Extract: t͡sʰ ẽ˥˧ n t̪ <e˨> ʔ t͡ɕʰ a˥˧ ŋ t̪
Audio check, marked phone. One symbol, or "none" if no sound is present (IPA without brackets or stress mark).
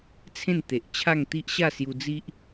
e˨